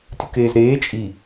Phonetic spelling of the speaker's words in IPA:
tʲ u k eː z ɾ eː t͡ʃʼ i

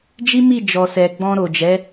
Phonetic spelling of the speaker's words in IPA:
d͡ʒ i˦ m i˦˨ d͡ʒ ɔ˨ s ɛ˨ ɡ͡b ɔ̃˧ ɾ o˨ d͡ʒ ɛ˨˦

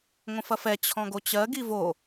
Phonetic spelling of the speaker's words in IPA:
ŋʷ ə̃ f ɐ f ɛ t͡ɕʰ ɔ̃ ɡ o t͡ɕ ɜ ɡ i v o

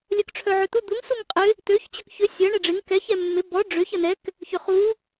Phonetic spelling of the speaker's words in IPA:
lʲ œ k ʈ͡ʂʰ œ ʕ ø t̪ u d̪ u ŋ s u ŋ qʼ ɪ | t̪ ø ç t͡ɕ ʏ k ç ʏ sʲ ɐ ɳ ɛ ɖ͡ʐ ɪ ŋ k ɛ ç ɛ mː ɪ b ɔ ɖ͡ʐ ø ç ɐ n ɛ k | ç ʏ χ u

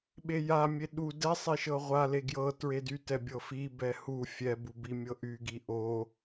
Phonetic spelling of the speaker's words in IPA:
ɓ e j a mʲ e ɗ u d ɛ sˤ e ʃ ɤ ʁʷ a l e ɡ j ɤ t ɹ e d y t ɛ bʲ ɤ f i b ɛ h u fʲ ɛ b u b i mʲ ɤ ʔ y ɡ i ʔ o

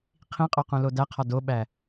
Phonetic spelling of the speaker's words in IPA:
qʰ ĩ qʼ o q ũ l o d æ qʰ ɒ d o ɓ æ

